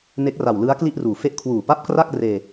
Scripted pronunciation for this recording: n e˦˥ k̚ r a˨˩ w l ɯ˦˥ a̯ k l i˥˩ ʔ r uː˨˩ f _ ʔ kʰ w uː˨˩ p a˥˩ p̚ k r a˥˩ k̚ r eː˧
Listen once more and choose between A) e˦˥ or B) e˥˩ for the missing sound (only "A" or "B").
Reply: B